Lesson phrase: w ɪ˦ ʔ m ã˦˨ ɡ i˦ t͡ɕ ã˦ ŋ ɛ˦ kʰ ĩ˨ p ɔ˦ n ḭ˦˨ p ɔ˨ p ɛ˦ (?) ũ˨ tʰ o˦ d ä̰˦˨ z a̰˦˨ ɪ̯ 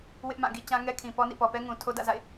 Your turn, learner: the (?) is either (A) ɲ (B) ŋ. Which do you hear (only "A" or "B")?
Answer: B